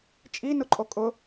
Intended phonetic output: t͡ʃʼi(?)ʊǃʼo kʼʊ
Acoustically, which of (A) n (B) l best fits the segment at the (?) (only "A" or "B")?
A